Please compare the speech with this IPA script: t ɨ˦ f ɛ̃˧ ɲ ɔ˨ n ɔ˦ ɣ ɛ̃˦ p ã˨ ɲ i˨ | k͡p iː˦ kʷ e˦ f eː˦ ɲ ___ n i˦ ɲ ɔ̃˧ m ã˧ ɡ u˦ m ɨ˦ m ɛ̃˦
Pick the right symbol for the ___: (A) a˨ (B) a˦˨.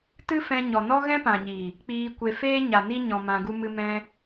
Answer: A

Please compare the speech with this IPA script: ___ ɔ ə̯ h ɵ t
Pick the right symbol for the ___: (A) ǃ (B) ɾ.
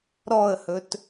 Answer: B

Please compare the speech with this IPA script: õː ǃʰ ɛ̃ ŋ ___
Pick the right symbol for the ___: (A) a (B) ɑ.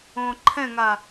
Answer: A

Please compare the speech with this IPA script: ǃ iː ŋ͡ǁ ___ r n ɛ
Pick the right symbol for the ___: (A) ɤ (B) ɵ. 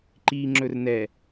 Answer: B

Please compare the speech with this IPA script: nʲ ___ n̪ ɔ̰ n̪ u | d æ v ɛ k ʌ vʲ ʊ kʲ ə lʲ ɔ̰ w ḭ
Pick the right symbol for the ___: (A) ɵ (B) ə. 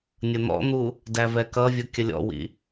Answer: B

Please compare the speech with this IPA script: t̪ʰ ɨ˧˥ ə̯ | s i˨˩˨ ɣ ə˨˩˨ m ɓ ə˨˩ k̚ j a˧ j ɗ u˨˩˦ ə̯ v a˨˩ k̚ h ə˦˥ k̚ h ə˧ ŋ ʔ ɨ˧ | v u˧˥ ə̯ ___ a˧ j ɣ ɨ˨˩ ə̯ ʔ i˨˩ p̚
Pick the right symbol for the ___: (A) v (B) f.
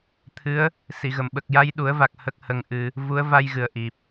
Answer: A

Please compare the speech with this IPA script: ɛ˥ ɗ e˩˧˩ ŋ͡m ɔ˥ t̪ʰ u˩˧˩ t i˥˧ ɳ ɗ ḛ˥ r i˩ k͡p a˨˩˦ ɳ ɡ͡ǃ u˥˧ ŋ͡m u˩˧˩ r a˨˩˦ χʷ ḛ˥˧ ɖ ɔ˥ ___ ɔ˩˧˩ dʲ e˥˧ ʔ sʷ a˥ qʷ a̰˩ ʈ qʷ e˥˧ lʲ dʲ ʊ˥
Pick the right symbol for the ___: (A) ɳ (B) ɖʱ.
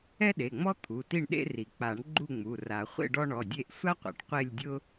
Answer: A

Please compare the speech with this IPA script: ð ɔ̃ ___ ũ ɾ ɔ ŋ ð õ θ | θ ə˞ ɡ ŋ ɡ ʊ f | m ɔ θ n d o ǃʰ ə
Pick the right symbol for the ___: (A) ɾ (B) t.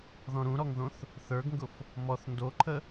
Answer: A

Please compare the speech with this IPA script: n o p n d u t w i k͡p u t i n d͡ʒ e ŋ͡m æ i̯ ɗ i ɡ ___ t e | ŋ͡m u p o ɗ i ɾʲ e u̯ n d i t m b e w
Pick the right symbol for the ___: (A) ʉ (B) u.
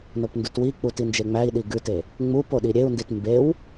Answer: A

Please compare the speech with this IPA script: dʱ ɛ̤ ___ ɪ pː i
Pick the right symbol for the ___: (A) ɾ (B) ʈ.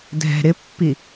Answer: A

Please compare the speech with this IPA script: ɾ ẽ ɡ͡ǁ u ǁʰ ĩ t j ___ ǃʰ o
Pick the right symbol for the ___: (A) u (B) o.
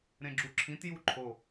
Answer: A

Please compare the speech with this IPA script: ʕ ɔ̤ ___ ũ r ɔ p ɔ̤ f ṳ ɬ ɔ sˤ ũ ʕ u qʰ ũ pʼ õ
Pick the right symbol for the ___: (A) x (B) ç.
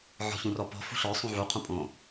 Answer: B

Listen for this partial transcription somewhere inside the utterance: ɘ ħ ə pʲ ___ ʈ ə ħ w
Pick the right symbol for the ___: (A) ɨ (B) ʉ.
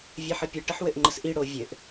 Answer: A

